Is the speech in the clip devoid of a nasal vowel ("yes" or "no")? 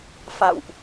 yes